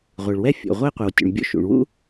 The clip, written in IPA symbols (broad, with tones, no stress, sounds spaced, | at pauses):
ʁʷ ɯ˩ ɭ w ɛ˥ fʲ o̰˩ ʁʷ e˥ qʷ i˩ w tʲ ṵ˩ ɳ bʲ o̰˥ ʃ ṵ˩ ɳ w ṵ˥